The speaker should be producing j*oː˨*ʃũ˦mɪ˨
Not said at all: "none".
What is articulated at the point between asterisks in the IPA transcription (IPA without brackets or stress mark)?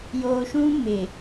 oː˨